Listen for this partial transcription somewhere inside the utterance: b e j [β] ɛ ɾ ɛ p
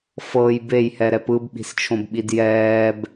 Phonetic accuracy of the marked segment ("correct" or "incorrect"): incorrect